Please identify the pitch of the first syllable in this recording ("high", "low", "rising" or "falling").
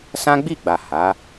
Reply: high